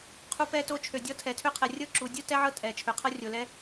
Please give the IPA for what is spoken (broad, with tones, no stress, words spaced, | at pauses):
qʰu˦pɛ˦to˦t͡ʃʰø˨ dʲɔ˦tʰɛ˨tʰø˦qʰɛ˨ rʲɤ˥ǁu˨ dʲu˥ tɛ˦ʕɤ˦ tʼɛ˩ t͡ʃʰø˩qʰɤ˦rʲo˩lɛ˦